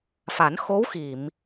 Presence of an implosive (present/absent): absent